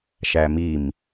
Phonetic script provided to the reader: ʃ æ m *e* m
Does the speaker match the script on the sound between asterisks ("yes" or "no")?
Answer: no